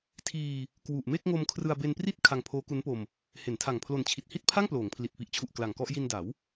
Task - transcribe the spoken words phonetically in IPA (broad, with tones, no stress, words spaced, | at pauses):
tʰiː˧ | kwu˨˩ʔme˥˩k̚ŋo˧mkʰrɯ˧a̯ be˧npri˥˩t̚ kʰa˧ŋpʰoː˦˥ku˦˥npo˧m | he˩˦ntʰa˨˩ŋ pʰlo˨˩nt͡ɕʰi˨˩t̚hi˥˩t̚pʰa˥˩ŋ ploː˩˦ŋpʰli˨˩t̚ pi˨˩ʔt͡ɕʰu˨˩ʔ kla˨˩ŋkɔ˥˩ʔ ji˧nda˩˦w